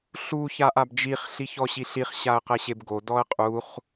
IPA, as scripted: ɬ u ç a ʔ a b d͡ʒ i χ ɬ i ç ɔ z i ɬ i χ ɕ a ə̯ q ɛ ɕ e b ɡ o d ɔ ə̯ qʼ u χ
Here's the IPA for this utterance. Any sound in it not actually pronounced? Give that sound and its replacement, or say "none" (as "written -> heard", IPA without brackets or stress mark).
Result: z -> ɕ